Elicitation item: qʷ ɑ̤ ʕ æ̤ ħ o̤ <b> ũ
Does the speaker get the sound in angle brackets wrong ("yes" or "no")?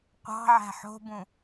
no